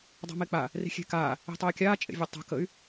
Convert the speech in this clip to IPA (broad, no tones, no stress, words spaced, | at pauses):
dˤa̤mek͡pa | ri̤xʲe̤kaː | i̤tˤeːkʲaː t͡ʃʼḛvʲøtˤa̤ kəy̯